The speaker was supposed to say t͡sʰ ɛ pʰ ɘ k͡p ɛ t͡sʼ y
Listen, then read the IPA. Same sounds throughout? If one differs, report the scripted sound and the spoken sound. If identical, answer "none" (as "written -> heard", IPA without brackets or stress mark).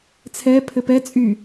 k͡p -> p